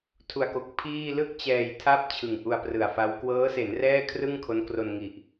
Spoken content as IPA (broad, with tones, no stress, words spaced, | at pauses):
tʰu˨˩a̯ko˨˩k̚ pʰiː˥˩ lɯ˥˩k̚t͡ɕɛː˨˩j tʰa˥˩p̚ t͡ɕʰɯ˨˩ŋʔu˧a̯prɯ˨˩a̯fa˦˥w kwɤː˦˥se˩˦n rɛː˥˩kʰrɯ˥˩ŋ kʰo˦˥nkro˧n ŋi˨˩ʔ